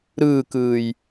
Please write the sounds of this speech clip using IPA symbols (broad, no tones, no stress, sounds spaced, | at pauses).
ɾ ɯː k ɯː j